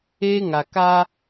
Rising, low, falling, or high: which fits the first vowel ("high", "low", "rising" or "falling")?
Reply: high